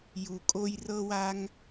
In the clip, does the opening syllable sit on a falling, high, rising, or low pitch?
low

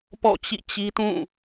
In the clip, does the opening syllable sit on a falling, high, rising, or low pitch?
falling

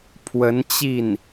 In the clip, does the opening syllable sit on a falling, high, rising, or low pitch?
rising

